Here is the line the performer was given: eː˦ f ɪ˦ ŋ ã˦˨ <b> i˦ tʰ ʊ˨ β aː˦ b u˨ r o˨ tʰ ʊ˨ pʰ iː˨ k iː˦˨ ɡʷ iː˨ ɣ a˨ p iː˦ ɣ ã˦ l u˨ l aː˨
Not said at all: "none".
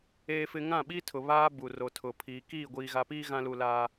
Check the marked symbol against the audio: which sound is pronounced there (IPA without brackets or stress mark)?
ɓ